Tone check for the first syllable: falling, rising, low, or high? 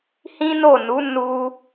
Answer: high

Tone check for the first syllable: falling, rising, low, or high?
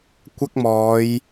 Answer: high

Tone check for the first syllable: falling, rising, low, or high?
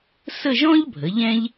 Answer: falling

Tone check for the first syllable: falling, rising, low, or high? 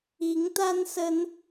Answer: rising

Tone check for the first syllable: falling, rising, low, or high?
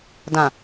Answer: low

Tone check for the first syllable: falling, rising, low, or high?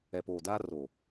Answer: low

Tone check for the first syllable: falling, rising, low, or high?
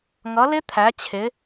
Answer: rising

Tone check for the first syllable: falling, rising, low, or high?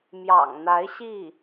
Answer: low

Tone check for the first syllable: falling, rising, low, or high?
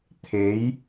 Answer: rising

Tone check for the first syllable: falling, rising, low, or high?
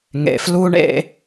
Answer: low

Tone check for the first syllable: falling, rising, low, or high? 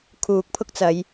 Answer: low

